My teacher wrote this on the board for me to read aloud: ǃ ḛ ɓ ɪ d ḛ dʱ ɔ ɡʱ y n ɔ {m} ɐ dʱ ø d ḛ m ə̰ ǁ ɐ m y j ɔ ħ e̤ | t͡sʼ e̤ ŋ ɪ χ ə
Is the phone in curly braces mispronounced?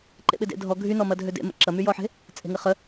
no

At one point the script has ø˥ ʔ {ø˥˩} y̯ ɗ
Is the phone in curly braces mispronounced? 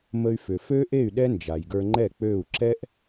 yes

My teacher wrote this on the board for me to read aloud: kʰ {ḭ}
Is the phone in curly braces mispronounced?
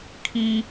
yes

